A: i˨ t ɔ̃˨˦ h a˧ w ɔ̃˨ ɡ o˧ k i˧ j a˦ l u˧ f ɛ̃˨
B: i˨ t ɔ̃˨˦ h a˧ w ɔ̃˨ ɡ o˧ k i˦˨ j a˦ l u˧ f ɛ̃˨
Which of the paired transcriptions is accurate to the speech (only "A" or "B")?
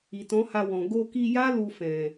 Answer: A